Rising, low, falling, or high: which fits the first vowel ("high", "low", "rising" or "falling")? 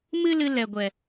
high